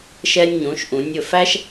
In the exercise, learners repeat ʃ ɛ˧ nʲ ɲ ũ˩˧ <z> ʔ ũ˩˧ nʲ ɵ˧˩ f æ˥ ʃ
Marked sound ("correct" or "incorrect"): incorrect